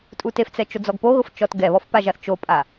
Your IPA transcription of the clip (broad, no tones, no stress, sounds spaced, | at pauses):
tʼ u t e f t͡s ɛ t͡ʃ o d͡z ɔ ɡ p o ɣ ʊ f t͡ʃ ɔ t ɡ ɛ β ɔ f p a ʒ a θ t͡ʃ o pʼ a